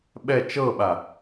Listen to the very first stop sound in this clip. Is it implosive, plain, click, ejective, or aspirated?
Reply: implosive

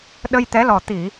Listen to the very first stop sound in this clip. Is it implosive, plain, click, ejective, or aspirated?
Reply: implosive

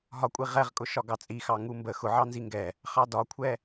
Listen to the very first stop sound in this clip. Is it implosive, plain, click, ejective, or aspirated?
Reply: ejective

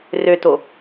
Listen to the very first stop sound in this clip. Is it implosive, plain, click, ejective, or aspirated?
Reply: plain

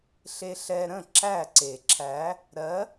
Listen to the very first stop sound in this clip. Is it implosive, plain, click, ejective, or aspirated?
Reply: click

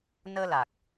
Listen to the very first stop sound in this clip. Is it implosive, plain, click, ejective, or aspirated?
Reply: plain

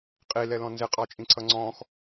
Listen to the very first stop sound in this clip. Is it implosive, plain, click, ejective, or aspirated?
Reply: ejective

